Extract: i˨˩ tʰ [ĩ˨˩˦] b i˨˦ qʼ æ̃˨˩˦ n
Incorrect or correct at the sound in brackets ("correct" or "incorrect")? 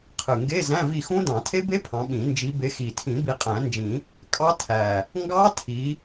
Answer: correct